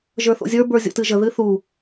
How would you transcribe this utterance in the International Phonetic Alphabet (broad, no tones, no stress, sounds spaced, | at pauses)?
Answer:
ʒ ə˞ θ o̰ zʲ ə˞ b ə˞ zʲ o̰ t ɨ ʒ ə ð ɨ θ u